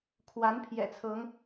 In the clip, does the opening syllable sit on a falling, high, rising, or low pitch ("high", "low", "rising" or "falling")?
rising